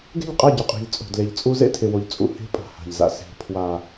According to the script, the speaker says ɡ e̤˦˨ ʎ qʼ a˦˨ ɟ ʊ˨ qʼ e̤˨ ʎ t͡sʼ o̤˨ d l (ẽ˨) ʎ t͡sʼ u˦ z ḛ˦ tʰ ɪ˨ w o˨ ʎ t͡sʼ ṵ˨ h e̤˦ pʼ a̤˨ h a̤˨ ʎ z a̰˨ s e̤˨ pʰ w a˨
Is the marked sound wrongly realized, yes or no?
yes